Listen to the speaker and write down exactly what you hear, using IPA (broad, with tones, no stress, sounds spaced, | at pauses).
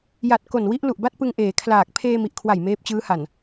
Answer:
j a˨˩ t̚ k o˨˩ n w i˦˥ ʔ l u˨˩ ʔ b a˥˩ t̚ p ɯ˧ ŋ ʔ eː˩˦ kʰ l aː˨˩ k̚ pʰ eː˧ m i˨˩ ʔ kʰ w a˨˩ j m eː˦˥ p̚ t͡ɕ ɯː˦˥ h a˨˩ n